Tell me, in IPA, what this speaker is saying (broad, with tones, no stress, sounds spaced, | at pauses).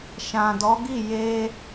ʃ ã˨ d ɔ˨˦ ɡ i˦˨ j e˧